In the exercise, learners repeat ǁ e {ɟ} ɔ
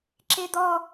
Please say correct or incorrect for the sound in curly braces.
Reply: incorrect